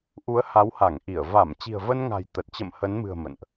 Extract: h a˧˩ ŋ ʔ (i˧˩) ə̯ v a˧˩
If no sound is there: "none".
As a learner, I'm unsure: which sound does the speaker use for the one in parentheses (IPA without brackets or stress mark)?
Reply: i˧˩